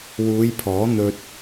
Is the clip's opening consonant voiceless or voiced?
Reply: voiced